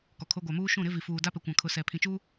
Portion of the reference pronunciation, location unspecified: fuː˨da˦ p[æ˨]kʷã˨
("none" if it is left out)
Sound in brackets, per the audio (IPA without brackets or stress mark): ɛ˨